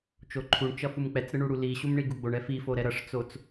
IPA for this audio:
t͡ʃoǃʰuɳt͡ʃʌ fumk͡pɛt͡sɾɯ ɳuɽuliɕum ɳiɡuɡ͡boɳɛ fifo ɾɛɾʌʂt͡sot͡s

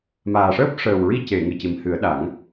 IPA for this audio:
maː˨˩ʂəː˦˥p̚ ʂəː˨˩wɹi˧ce˨˩˨ ŋɨ˨˩ci˨˩˨mhɨ˨˩˦ə̯ɗa˨˩˦ŋ

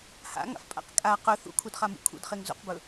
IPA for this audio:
ha̰ŋa̰fpʼa̰q kʼa qɵ θṵkʰudχamṵ kʰṵdχeŋ zṵqbɵ

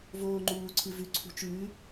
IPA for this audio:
voːŋ͡ǃuː ǀʰɨvʉ ǀʰṳt͡ʃʉː

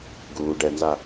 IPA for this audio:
ɡuː ɖɛnza

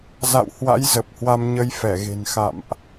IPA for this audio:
za̰˧˨whwa̰˧˥j zə˨˩p̚hwa˧m ɲə˧jfɛ˧˩ɣe̤˨˩n xa̰˧˨mʔ

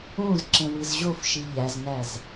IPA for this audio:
ũz ǁẽwɨzʑofʃi ʎæznæz

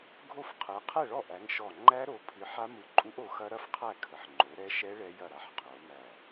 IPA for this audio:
ɡʱo˥˨fqʰɯ˨˦ qʰɛ˥˨ɭɔ˥˨ʔæ˨˦ŋʃɔ˧˩ ŋ͡ǃæ˦˥ɾo˨˦pʰɨ˨˦ ħa˦˥mɯ˧˩ǃʼu˦˥ʔ o˨˦xɐ˦˥ɾɐ˥˨fqʰæ˥˨ kʰə˨˦ħŋ͡ǃo˨˦ɾɛ˦˥ ʃɛ˦˥ ɭɛ˦˥jɐ˥˨ɾa˦˥ħ qʰo˨˦mæ˧˩

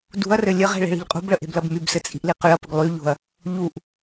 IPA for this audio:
dṳɐ̯rɘ lʲəʁe̤ ɭe̤ɭi̤ʎqʼṳbɭə ʔe̤blɐbmybsɘ t͡sʼi̤ʔliqyɐ̯pəɡ lˠy ʎo̤ɐ̯ | ʎuʔ

